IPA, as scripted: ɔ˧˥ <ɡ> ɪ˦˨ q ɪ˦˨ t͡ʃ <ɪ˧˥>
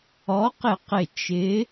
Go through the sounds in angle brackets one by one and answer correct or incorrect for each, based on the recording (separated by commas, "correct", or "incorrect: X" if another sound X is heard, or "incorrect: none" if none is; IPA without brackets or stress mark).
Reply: incorrect: q, correct